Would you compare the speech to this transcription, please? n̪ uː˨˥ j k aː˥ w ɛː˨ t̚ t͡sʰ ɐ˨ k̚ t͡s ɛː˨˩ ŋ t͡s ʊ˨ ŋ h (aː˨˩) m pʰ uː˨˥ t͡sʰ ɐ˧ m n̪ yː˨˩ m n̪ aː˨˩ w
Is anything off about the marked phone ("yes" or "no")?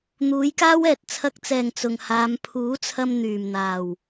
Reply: yes